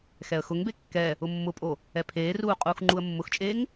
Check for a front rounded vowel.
absent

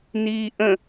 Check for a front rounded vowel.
absent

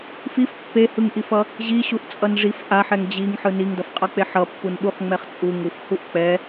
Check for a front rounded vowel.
absent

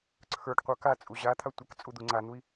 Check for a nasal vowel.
absent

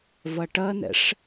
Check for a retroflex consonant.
present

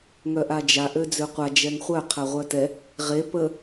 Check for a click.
absent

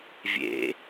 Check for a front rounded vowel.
absent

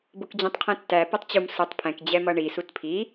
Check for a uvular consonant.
present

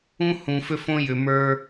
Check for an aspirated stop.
absent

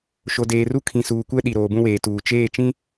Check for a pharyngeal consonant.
absent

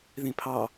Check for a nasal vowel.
present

